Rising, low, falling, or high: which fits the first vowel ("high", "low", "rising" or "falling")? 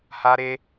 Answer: high